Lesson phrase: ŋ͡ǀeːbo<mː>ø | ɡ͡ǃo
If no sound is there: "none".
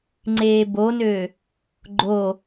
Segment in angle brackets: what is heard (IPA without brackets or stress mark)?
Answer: n